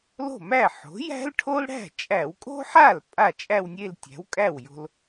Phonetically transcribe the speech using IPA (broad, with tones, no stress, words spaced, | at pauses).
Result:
lo̤˥˩mæ˥˩ ħo̤˩˥ jæ̤˥lʈʰo˥lɽæ̤˥˩ t͡ʃʼæ˧˩˧wkʼo̤˥ħa˥˩l pʼa˥˩t͡ʃʼæ˥˧wnʲe˥˧l tʲæ̤˩˥wkʼæ˥˩wjo̤˧l